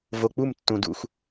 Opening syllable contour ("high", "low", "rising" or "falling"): low